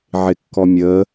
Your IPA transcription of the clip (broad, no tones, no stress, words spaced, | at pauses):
ʕɪkːɔmʲə